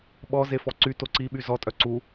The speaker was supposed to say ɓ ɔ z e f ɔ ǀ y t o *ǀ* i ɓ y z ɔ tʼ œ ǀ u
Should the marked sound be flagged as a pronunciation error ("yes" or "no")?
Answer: no